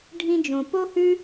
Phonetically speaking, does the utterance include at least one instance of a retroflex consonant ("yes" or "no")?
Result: yes